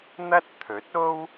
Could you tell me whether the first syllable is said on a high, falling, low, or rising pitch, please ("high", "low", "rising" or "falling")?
high